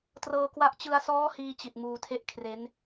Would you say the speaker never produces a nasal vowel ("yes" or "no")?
yes